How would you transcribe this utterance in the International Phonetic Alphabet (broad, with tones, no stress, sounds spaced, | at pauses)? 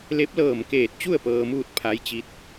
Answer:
l e˧˥ p̚ l ɤː˧˩ m k eː˧˩ t̚ t͡ɕ u˥˨ ə̯ p ɤː˧ m uː˥˨ t̚ pʰ a˧˥ j t͡ɕ i˧˥ t̚